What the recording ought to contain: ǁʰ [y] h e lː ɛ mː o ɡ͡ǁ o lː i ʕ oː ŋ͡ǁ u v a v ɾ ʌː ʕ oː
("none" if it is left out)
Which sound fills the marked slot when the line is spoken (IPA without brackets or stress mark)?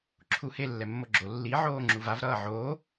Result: u